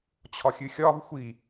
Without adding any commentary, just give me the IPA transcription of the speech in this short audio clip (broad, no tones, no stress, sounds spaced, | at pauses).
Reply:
t͡ɕʰ ɒ xʲ ɨ xʲ ɒ v xʷ i